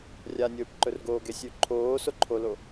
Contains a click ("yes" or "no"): yes